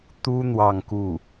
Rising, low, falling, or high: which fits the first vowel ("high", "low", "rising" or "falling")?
high